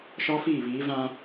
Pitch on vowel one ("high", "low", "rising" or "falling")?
high